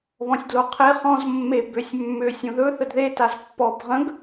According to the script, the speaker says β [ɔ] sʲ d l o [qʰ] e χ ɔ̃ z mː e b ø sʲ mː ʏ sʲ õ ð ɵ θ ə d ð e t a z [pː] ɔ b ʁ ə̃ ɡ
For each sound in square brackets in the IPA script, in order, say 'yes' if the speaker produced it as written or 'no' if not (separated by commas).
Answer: no, yes, yes